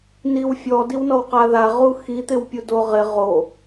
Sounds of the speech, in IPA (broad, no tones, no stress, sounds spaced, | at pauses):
n i w fʲ ɔ d i w n ɔ w q a ð a ʁ u x i t̪ ɪ w pʲ u d o ʁ ɪ ʁ o